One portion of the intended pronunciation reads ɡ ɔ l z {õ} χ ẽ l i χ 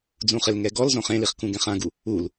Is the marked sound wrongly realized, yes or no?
no